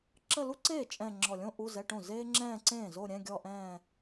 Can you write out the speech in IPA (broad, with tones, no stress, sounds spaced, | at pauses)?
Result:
ǁ ə˥˧ l u˥ ǀ eː˥˩ t͡ʃʼ ɛ̃˥˧ ŋ͡ǁ ɔ˧˩ lʲ õ˥ ʔ u˧˥˧ z ɛ˧˥˧ ʈ õ˥˩ z eː˥ ŋ͡ǁ ɛ̃ː˥˧ ǀ ẽː˥˩ z o˥˧ ɾʲ ɛ̃˧˥˧ ɡʲ ɔ˥˧ ʔ ɛ̃ː˥˧